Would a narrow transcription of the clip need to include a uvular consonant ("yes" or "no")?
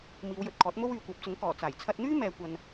no